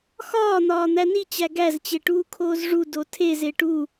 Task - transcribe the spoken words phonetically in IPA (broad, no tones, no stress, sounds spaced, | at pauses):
x ɒː n̪ ɒː n̪ æ n i t͡ɕ æ ɡ æ z t͡ɕ e ʈ uː kʰ oː z ʐ u d o tʰ e z e ʈ u